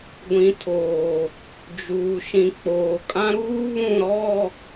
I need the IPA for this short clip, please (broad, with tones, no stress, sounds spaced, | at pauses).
ɡʷ ĩ˨ tʰ oː˨ | d͡ʒ uː˨ ʃ ĩ˨ k͡p oː˨ kʼ ã˦ ɾ uː˦ β ũ˦˨ ɾ ɔ˦˨